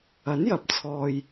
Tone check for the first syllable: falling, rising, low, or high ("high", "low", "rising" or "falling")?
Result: rising